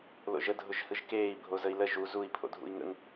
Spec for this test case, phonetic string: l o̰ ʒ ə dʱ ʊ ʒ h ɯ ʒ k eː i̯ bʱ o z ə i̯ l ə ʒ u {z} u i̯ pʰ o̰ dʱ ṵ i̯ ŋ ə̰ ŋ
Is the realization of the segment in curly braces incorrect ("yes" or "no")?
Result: no